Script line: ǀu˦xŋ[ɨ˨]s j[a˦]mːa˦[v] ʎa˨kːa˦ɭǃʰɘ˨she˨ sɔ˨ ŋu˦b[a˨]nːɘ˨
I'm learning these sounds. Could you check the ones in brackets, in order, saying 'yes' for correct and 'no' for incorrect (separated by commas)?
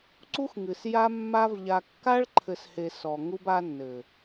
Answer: yes, yes, yes, no